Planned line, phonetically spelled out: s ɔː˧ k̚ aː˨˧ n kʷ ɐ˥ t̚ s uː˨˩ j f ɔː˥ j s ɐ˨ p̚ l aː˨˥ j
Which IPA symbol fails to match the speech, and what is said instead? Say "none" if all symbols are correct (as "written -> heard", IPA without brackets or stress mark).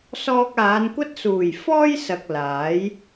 p̚ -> k̚